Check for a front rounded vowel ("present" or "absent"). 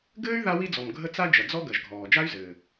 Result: present